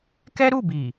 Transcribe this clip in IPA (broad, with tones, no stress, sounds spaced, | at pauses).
k ɛ˦ ɾ u˦˨ b i˨